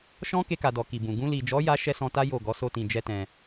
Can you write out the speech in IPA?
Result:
ʃɔ̃˦ke˧ka˨dɔ˨ ki˨bũ˨ ɡũ˧li˨d͡ʒɔ˨˦ja˧ ʃɛ˦sɔ̃˧ta˦ jo˦˨ ɡɔ˨˦so˧tĩ˨ d͡ʒɛ˧ tɛ̃˨

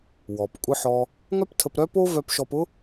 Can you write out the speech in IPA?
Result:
wɔ˩pkʷʼɯ˧ħɔ˧ | ŋœ˥ptʰə˧pɾœ˥po˥ vœ˧pʃɔ˧pʊ˥

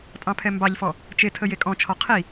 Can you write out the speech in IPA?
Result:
tʼɑ̃pʰɛmbɑʎfɔ | t͡ʃetʰə jekʼɔ̃t͡ʃʰɔ qʰi

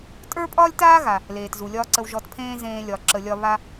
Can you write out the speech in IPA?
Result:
tʼə˞˥pʼɒː˥lʲtaː˥ɣa˩ | leː˩tzu˩lʲɒː˥ǀə˧w ʒɔ˧tpʰẽː˥ zẽː˧lʲɒ˩ ǁə˩lʲɒ˧ βa˥

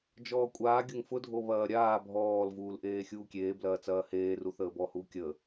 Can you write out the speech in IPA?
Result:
d͡ʒɔːkʷʼaː ɡʲʊŋfʊ dʱoβɐːɾʲaː bʱɔːl vuːlʔeːxʲuːkʲeː blɐːt͡sɐːheː ruθəːbɔ huːkʲəː

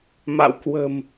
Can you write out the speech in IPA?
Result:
ma̰˧˨wkwə̤˨˩m

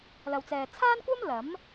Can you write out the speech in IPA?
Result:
lɐ˨wt͡sɛː˨t͡sʰaː˥nkʷɐ˥m lɐ˨˥m

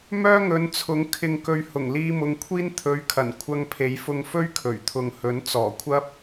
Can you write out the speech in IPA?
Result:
mœː˥ŋɵ˨˧nt͡sʰʊ˨˥ŋ kʰɪ˨ŋkɵ˨ɥ hʊ˨˩ŋliː˧mʊ˨˧ŋkʷʰiː˥n t̪ʰɵ˨˧ɥkʰɐ˨˩n kʷʰɐ˧ŋpʰe˨˥jfʊ˧ŋ fɵ˥ɥkʰɵ˨˩ɥt̪ʰʊ˨ŋhɵ˨˥n t͡sɔː˨˩kʷʰɐ˥p̚

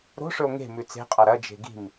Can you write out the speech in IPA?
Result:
ɾo̤ʂɵo̯ ŋe̤ mʉt͡se̤qʼa ɾɐd͡ʒe̤ ɡi̤m

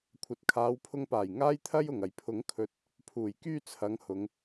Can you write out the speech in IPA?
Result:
kʷʰɐ˨t̚kʰaː˨˧wpʰʊ˧ŋpaː˨˩j ŋaː˥jt̪ʰɐ˥j ʊ˨˩ŋɐ˨˩jpʰʊ˨˥ŋkʰɵ˧t̚ | pʰuː˨˩jkyː˥t͡sʰɐ˨˧ŋhʊ˨˧ŋ

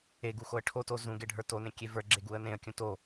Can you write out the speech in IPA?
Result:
eɡu xoə̯ʈʰoto zũ ɡeɖʱə˞tonẽ kʲevə˞ɡ͡ǁe ɡuə̯nẽə̯kʲũ to

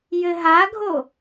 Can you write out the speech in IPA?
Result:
jɘɦaɡʱo

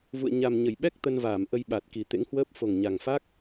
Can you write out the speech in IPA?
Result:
vṵ˧˨ə̯ɲa˨˩mɲə˧˩jɓɛ˦˥k̚ t̪ə˧nvaː˧˩mʔə˧jɓa˨˩t̚ ki˨˩t̪ḛ˧˥ŋhwəː˦˥p̚ fo˨˩ŋɲa˨˩ŋfa˦˥k̚

